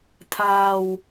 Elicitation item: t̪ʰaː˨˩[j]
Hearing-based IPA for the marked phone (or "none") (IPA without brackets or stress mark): w